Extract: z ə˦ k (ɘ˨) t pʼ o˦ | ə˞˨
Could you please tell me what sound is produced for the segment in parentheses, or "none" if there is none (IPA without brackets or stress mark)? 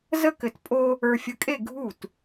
ɘ˨